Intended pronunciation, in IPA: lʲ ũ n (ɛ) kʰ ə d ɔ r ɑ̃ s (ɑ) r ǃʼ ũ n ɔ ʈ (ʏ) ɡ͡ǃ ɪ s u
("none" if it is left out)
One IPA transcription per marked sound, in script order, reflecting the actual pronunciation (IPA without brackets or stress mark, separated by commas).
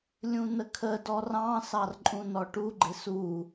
ə, ɑ, u